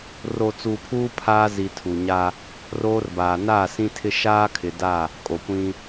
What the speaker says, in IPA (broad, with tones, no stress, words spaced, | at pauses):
ro˨ t͡suː˨pʰuː˦ pʰaː˦zi˨ tʰu˨ɲa˦ | roː˦rbaː˨ naː˦˨sĩ˦tʰɪ˦ ʃaː˦kʰɪ˨da˦˨ | kʼo˨kʷĩ˦